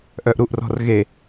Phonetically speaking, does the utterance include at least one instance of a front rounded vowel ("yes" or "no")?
yes